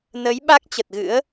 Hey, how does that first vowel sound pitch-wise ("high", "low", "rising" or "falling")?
rising